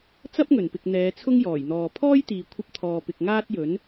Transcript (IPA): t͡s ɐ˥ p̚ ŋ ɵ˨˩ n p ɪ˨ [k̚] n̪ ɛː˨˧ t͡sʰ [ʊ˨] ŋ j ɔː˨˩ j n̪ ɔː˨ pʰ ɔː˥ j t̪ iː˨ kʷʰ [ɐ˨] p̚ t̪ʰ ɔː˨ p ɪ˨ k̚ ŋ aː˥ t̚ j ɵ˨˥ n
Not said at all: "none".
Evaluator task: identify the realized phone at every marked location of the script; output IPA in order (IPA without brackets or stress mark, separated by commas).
k̚, ʊ˥, ɐ˧